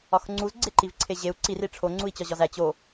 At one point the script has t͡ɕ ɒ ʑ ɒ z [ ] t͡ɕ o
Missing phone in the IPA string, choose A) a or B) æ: B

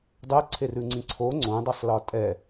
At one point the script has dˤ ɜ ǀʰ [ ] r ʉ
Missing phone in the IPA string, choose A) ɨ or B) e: B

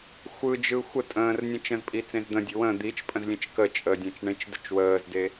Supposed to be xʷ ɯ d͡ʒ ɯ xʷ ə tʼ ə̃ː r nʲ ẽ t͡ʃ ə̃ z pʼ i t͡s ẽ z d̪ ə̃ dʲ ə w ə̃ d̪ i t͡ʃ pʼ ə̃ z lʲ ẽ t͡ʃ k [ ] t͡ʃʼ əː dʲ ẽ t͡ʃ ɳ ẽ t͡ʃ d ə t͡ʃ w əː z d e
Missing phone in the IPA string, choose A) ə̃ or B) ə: B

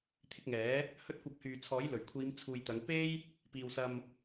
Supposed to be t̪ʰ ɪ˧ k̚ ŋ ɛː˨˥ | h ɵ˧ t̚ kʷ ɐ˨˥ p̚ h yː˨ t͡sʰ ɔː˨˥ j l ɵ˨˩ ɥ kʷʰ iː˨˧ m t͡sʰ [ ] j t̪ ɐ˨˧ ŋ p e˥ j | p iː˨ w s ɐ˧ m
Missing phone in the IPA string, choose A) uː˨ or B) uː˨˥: A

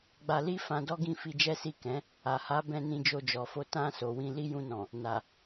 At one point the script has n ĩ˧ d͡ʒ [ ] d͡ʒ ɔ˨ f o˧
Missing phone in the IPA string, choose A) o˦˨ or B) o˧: B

